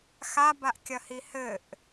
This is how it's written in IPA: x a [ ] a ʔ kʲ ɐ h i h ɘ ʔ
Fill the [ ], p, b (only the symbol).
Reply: b